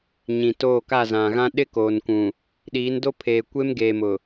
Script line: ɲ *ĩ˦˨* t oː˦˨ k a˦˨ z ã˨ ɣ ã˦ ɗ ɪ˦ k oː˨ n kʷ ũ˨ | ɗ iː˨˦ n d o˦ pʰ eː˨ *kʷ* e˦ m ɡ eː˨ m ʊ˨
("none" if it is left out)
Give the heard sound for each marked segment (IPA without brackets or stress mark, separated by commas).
ĩ˨, kʷ